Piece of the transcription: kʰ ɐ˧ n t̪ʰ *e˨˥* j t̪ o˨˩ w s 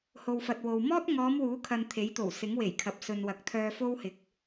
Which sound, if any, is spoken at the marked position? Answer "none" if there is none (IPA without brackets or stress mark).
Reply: e˨˥